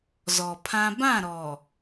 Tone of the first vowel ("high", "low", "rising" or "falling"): low